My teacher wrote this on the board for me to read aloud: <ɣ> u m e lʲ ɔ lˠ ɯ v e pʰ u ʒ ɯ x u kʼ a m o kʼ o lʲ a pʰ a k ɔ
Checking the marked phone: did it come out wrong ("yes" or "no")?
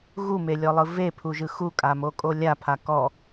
no